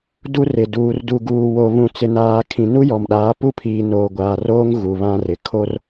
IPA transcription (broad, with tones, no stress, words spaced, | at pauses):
du˦rɪ˨ duː˨rdu˨ ɡuː˨wo˨ βũ˨t͡sɪ˨naː˨ kʰĩ˨nu˦jɔ˨mɗaː˨˦ pu˦pʰiː˨ noː˨ɡʷaː˨roː˦ŋ ɣu˨βã˦rɪ˨ kʰo˦r